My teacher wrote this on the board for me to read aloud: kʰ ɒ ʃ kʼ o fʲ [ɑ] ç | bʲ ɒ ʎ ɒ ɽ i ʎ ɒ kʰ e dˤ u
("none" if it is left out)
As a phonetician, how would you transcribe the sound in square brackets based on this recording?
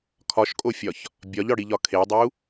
ɒ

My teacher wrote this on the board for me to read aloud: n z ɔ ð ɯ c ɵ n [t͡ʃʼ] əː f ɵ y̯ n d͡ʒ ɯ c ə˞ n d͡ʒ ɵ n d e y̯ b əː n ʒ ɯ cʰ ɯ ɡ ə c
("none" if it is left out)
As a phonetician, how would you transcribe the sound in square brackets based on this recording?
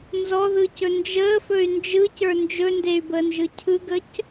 d͡ʒ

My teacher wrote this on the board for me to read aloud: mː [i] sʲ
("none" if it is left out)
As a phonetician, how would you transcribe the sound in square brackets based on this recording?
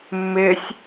ɪ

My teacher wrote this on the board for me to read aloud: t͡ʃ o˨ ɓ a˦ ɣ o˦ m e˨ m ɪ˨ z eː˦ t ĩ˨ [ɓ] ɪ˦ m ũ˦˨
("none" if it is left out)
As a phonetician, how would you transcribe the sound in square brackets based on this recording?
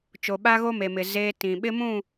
ɓ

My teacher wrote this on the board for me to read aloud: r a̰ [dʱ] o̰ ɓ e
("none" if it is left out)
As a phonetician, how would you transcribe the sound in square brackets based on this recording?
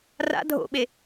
dʱ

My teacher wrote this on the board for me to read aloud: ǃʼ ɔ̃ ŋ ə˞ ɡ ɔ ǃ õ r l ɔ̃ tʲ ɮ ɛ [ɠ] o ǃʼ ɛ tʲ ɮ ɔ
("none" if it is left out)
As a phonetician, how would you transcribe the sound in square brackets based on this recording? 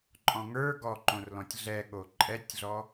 ɠ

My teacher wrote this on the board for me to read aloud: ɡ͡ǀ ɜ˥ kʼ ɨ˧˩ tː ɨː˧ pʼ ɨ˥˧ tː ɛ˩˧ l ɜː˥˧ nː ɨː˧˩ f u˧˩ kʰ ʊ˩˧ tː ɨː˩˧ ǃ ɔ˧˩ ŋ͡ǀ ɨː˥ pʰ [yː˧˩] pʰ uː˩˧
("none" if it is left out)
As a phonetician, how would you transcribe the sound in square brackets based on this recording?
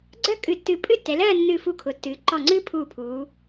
uː˧˩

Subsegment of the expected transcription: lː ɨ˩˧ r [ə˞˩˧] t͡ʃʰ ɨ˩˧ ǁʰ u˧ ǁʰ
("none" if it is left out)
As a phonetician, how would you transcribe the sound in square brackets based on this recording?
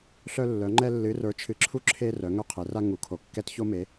ə˞˩˧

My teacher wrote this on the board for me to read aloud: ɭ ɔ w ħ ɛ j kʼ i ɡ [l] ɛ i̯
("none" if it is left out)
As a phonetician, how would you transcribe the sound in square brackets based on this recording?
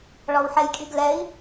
l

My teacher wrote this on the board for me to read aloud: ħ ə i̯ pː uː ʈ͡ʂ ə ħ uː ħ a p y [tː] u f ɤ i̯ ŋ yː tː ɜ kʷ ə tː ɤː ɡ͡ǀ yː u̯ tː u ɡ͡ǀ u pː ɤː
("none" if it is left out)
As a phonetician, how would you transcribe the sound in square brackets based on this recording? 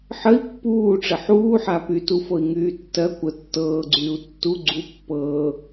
t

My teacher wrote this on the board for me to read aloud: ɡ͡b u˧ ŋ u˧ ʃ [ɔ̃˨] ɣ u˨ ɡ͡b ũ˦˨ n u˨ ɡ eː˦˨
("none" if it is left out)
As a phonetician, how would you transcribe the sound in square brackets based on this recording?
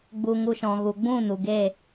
ɔ̃˨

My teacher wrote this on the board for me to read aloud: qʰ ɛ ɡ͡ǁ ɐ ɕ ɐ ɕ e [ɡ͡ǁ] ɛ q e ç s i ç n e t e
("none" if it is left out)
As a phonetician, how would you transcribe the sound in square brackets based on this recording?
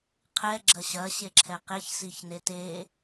ǁʰ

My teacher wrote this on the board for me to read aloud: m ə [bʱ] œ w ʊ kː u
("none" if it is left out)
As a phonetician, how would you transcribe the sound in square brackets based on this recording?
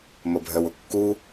bʱ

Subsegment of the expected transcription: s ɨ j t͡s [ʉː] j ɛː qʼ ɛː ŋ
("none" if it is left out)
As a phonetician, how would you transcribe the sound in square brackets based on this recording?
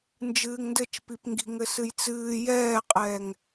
ɨː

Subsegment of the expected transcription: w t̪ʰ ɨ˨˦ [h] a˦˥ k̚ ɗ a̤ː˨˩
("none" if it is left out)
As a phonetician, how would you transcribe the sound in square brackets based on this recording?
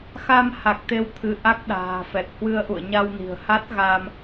ʔ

